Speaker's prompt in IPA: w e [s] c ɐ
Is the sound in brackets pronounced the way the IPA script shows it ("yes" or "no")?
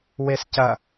yes